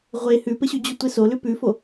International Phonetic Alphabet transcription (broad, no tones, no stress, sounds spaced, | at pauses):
ʁʷ e h ʉ p ɘ ɕ ʉ d͡ʑ u tʷ e s o l ʉ p ʉ f o